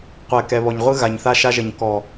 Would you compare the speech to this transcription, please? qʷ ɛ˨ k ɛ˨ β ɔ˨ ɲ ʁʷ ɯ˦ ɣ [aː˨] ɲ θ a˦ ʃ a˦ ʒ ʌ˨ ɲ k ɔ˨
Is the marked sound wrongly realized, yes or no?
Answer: yes